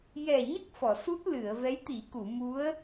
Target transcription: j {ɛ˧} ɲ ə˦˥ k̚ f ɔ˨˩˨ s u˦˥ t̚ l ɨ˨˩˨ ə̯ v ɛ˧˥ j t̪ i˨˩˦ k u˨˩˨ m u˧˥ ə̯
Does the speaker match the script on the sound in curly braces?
no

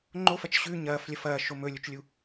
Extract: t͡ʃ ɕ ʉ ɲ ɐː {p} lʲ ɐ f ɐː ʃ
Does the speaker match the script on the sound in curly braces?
no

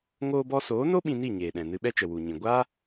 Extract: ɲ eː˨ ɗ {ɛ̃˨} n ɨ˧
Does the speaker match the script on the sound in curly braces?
yes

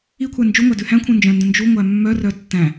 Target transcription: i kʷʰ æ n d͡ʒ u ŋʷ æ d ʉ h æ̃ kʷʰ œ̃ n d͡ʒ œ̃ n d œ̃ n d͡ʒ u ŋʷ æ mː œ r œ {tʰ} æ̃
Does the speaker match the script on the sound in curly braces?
no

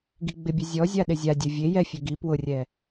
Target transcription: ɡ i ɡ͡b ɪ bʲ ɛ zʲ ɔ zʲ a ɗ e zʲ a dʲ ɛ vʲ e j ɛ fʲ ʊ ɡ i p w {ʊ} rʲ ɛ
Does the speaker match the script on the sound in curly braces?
yes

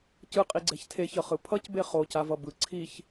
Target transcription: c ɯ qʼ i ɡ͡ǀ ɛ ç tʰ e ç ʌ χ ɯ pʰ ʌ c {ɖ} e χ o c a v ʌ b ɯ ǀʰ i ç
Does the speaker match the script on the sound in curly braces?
no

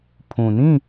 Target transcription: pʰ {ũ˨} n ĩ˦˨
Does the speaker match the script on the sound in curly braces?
yes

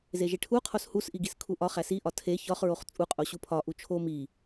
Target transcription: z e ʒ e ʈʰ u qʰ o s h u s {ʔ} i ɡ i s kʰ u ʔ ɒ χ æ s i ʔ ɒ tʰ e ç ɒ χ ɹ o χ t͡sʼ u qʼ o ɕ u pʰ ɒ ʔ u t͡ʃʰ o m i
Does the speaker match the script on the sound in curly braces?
yes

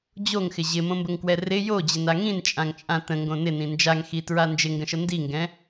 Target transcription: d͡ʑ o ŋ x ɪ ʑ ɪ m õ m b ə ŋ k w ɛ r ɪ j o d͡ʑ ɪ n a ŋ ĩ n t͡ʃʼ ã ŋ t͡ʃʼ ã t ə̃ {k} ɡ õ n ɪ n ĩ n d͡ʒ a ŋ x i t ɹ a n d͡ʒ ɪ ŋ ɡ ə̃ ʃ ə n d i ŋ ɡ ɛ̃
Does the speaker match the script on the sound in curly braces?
no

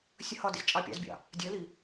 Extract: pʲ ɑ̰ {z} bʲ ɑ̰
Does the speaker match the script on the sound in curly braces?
yes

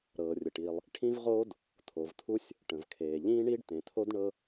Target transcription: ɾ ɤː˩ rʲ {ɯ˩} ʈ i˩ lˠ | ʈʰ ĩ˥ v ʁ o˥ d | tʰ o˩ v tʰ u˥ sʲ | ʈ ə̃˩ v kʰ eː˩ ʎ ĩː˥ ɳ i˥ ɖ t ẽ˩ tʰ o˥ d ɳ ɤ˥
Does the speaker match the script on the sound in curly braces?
no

